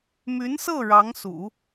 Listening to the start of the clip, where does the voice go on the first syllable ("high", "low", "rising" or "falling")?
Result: rising